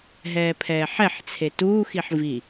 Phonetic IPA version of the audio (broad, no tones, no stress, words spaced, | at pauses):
ɦɛːpʰɛːħɛħt͡sʰe tuːxiħ vi